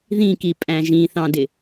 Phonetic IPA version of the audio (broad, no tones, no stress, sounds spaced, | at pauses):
ð ĩ k i pʼ æ̃ ʒ ĩ θ ɑ̃ d ɪ